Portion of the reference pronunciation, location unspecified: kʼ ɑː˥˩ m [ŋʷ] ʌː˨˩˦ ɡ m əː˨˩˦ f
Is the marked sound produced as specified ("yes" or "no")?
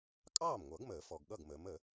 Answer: yes